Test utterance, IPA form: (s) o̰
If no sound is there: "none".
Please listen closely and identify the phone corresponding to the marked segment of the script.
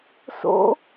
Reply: s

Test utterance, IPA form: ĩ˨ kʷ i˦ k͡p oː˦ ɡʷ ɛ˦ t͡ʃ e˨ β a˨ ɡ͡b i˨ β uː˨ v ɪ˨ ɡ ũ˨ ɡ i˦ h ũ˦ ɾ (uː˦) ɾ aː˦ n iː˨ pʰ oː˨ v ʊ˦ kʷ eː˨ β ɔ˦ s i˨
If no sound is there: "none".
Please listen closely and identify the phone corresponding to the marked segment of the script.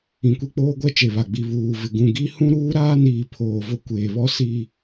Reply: uː˦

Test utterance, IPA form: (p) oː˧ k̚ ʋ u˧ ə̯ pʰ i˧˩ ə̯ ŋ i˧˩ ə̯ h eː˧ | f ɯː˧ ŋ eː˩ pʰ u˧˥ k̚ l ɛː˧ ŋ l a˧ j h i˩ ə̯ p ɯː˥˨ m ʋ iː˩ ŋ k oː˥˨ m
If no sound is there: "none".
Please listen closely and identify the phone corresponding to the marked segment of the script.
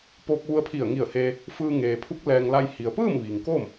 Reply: p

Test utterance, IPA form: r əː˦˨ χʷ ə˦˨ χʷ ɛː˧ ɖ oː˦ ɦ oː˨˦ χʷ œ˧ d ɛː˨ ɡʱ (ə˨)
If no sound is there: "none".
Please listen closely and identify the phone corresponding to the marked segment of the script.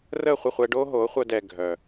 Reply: œ˨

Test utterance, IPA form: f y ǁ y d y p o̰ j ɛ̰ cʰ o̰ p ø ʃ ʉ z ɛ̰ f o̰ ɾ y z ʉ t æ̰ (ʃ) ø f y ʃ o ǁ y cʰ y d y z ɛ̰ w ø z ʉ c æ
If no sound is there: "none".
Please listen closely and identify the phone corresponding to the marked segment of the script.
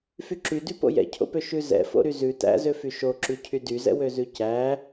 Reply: z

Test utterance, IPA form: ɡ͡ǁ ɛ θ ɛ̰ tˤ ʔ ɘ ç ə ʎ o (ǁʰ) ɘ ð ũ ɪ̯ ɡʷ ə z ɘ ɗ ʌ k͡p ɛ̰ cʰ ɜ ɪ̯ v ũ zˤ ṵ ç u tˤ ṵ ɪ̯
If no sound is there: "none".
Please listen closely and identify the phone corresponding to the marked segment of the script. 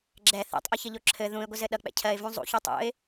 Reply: ǁʰ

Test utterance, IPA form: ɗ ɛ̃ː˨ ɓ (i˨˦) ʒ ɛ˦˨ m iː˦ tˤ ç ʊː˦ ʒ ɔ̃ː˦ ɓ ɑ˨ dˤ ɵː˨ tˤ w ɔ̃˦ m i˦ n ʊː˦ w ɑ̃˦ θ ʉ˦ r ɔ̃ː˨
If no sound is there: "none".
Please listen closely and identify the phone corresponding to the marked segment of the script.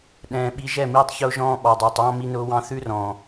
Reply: i˨˦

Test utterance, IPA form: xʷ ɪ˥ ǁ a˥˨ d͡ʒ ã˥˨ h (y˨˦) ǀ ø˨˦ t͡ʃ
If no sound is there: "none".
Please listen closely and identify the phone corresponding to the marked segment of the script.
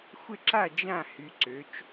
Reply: y˨˦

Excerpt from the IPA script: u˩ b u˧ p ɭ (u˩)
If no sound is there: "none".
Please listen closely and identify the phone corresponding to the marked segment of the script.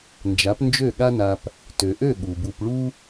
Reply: u˥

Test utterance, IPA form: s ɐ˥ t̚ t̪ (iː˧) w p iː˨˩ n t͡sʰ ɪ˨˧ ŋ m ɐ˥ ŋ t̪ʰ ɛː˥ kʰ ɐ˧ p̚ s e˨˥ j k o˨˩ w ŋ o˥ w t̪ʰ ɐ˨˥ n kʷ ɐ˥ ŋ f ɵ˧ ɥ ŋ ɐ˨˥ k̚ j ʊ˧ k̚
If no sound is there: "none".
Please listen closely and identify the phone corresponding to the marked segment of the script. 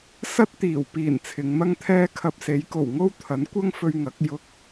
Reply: iː˨˩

